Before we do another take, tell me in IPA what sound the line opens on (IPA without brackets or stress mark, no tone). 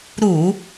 ɾ